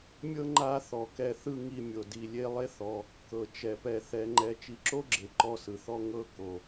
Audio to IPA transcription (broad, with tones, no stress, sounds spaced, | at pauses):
mʲ ɤ˥ ŋ͡ǃ a˦ θ ɔ˩ k ɛ˦ θ ɯ˥ ŋ i˦ mʲ o˨ d i˨ lʲ e˦ lˠ e˦ θ ɔ˨ | k ɤ˩ t͡ʃ ɛ˩ p ɛ˨ θ ɛ˨ ŋ͡ǃ ɛ˨ t͡ʃ i˨ ǁ o˥ ɡ͡ǁ e˩ ǃ ɔ˦ s ɯ˩ θ ɔ˥ ŋ ɤ˥ k o˩